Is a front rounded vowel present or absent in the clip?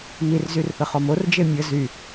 present